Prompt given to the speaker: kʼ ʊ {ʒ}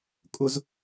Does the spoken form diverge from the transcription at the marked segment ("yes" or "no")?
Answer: yes